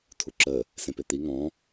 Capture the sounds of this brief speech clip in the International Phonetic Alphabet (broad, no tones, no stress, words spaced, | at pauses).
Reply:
tʰuǁə | sẽpet̪i ŋɔ̃